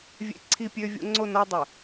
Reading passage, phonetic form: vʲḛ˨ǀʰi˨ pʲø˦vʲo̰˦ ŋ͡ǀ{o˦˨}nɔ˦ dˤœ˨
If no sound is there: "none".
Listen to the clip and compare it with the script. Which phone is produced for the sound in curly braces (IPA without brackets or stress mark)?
o˦˨